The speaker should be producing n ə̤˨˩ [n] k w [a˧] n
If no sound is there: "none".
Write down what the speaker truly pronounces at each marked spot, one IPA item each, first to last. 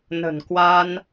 n, a˧

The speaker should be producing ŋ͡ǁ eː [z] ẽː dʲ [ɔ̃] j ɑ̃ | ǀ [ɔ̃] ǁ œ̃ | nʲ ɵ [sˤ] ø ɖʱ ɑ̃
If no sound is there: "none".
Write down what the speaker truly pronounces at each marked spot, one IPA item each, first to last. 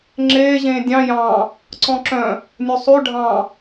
ʑ, ɑ̃, ɔ̃, sˤ

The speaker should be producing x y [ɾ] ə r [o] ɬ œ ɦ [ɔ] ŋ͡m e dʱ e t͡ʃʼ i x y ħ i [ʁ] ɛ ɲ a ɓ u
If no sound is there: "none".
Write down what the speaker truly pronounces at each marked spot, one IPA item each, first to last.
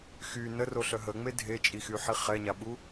n, o, ə, χ

